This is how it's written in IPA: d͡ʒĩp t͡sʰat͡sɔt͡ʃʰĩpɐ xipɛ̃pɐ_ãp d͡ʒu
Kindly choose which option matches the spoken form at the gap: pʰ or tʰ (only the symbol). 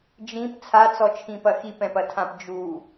tʰ